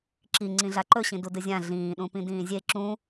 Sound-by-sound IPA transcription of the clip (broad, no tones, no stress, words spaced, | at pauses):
ǁi ŋ͡ǀĩɮaǃɵɕĩ dudɨzʲã ɮĩːɗũpĩ dĩːzʲe ǁũ